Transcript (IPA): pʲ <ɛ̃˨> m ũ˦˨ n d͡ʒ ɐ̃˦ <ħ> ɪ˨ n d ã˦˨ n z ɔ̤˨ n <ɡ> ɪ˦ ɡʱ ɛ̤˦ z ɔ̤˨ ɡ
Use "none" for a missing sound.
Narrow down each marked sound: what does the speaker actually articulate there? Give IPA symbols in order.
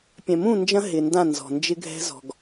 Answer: ɛ̃˨, ɦ, d͡ʒ

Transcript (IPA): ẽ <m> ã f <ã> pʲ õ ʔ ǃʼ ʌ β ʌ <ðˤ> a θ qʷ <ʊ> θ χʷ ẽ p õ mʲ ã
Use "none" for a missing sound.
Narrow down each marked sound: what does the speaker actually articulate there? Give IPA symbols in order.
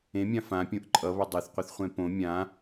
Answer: mʲ, ã, dˤ, ɯ

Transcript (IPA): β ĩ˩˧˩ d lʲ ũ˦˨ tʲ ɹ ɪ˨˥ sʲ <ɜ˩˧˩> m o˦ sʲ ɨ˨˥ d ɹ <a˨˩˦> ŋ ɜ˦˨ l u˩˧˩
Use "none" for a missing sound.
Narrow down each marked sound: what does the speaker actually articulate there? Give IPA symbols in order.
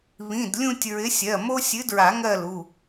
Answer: ɜ˩˧˩, a˨˩˦

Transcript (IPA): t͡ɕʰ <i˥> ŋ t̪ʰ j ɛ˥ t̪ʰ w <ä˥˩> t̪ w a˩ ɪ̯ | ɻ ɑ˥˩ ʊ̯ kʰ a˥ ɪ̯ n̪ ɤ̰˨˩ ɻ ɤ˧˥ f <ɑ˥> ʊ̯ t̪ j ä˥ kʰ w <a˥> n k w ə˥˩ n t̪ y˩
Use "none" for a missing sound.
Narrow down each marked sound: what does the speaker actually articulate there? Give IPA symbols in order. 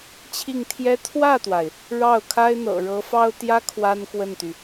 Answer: i˥˩, ä˥˩, ɑ˥, a˥

